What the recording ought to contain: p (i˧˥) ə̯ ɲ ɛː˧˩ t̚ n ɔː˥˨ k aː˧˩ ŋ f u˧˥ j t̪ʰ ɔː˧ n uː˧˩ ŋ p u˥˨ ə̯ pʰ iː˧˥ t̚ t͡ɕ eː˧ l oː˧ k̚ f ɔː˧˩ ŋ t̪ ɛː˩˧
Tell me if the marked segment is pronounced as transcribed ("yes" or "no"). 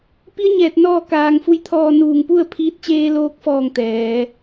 yes